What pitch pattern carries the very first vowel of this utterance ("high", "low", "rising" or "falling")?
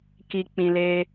low